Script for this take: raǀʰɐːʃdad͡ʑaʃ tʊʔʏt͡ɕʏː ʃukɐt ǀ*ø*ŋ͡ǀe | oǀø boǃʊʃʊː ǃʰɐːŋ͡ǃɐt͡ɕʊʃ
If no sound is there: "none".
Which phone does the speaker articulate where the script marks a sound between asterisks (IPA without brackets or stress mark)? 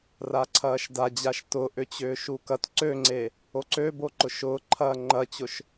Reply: ø